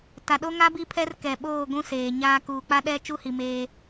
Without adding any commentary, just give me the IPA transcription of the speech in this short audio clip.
t a˨ ɗ o˦ ŋ a˦ b i˦ pʰ ɛ˦ r k ɛ˨ ɓ oː˦˨ ɡʷ ũ˦ s eː˨ ɲ aː˦ k uː˨ k͡p a˦ ɗ ɛ˦ t͡ʃ u˦ h i˨ m eː˦

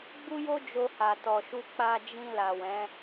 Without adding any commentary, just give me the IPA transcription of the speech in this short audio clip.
ɡ͡b u˦ j o˦ d͡ʒ o˧ h a˨ t ɔ˨ ʃ u˧ k͡p a˧ d͡ʒ ĩ˧ l a˨ w ɛ̃˨˦

